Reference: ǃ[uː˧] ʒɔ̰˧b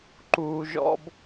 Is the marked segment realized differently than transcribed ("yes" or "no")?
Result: no